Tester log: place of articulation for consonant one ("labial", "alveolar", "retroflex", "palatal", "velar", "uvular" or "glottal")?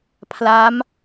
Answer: labial